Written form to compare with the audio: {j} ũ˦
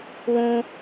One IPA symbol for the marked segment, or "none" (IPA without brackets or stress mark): w